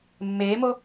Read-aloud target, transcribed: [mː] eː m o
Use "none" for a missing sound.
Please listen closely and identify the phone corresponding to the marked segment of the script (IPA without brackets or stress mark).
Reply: mː